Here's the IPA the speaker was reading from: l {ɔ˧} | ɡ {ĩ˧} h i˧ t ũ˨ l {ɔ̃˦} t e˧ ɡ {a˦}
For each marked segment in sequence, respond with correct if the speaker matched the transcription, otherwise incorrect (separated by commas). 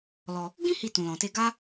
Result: correct, incorrect, incorrect, correct